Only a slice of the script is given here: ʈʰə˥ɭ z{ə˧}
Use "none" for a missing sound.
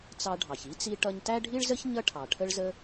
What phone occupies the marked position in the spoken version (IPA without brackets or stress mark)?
ə˥